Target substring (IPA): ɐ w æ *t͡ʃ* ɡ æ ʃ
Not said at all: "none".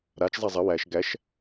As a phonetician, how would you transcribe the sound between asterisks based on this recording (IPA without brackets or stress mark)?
ʃ